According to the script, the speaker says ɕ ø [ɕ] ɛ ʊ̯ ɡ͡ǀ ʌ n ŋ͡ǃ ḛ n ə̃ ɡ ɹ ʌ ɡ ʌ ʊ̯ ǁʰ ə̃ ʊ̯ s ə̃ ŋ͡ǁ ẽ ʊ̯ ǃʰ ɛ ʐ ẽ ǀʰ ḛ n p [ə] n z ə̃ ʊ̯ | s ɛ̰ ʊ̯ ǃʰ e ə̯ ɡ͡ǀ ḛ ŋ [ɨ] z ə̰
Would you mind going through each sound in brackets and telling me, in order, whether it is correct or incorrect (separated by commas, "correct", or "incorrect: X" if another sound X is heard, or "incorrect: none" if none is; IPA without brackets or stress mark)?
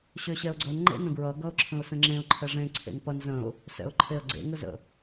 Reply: correct, incorrect: ʌ, incorrect: ə